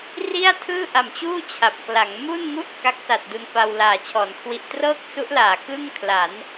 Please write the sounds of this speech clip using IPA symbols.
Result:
r i˥˩ a̯ tʰ ɯː˥˩ ʔ a˨˩ m t͡ɕ uː˥˩ t͡ɕʰ a˨˩ p̚ k l a˩˦ ŋ m u˥˩ n ŋ u˥˩ ʔ k a˦˥ k̚ s a˨˩ t̚ d u˧ n f a˧ w l aː˩˦ t͡ɕʰ ɔː˩˦ n kʰ w i˦˥ ʔ t r ɤː˥˩ k̚ s u˦˥ ʔ l aː˩˦ k ɯ˥˩ ŋ kʰ l a˩˦ n

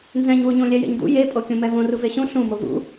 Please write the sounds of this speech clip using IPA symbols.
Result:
n z ɛ̃ ɲ w u ɲ ũ lʲ ɛ j ḛ ɲ d ṵ j e pʼ o kʲ ũ m ɛ v õ r u v e ɕ ũ ɬ ũ m o v ṵ

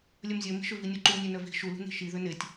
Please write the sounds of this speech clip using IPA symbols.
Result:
lʲ œ m zʲ œ m i̤ ʃ ø v i nʲ u ǃ u nʲ ø n œ v i̤ ʃ u l ṳ n i̤ ʃ i ð ø n e tʲ

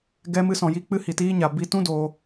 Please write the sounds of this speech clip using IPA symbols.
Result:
ɡ ɛ˦ m ɨ˦ s ɔ̃˧ j i˦ k͡p ɨ˧ h i˨ t iː˧ ɲ a˨ b i˧ t ũ˦ d oː˧

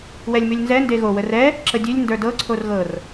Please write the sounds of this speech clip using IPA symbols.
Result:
w ɛ lʲ m ʉ lʲ n z ɛ n d e ɣ o w ə r ɛ | ǁ ə dʲ ʉ lʲ n d ə˞ d ɤ ǀʰ o r ɣ ɤ r

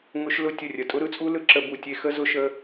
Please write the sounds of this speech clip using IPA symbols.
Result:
ŋ ʊ˦ ʃ l ʊ˦˨ tʲ ə˦˨ rʲ ə˨ tʼ ʊ˦ ɾ ɯ˦ t͡sʼ u˦ l ɯ˧ ǁ ə˧ b u˨ tʲ e˧ x ə˦ z ʊ˦ ʃ ə˦

